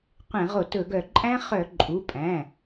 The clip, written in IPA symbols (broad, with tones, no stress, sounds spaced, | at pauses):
qʷ ɛ̃˧˩˧ ʁ o˧˩˧ t ɵ˧˩˧ ɡ œ˧˩˧ ǃʼ æ̃˦˥ χ œ˧˩˧ ǃʼ u˩˧˩ pʼ æ̃˩˧˩